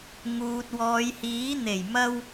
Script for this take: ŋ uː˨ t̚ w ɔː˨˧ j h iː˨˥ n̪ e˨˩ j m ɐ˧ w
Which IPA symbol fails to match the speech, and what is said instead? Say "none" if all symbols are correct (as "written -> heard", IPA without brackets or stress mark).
none